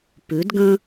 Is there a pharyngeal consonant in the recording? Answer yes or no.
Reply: no